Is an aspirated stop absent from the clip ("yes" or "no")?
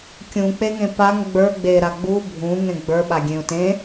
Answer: yes